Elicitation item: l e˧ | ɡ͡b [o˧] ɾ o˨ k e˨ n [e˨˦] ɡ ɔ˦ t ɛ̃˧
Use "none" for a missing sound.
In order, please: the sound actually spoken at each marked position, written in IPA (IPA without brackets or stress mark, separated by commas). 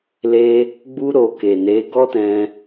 u˧, e˨˦